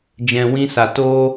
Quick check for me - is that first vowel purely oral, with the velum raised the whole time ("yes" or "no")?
no